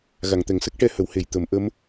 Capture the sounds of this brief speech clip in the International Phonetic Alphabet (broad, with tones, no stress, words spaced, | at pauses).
ɣa˨˩˨ŋt̪ɛ˨˩˨ŋsə˦˥k̚ ʈɛ˧hə˨˩˦w he˨˩˨j t̪ə˨˩˦m ʔə˧˥m